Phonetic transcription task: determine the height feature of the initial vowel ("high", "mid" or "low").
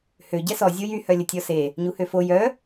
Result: mid